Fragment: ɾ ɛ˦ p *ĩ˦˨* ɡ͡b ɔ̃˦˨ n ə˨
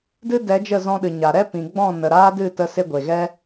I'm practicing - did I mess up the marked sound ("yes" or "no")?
yes